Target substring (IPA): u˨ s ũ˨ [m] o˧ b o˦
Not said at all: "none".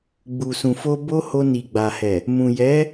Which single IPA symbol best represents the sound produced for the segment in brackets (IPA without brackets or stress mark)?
f